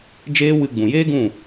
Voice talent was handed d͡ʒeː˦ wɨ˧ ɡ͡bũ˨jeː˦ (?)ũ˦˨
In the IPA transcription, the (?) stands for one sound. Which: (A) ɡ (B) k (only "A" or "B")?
A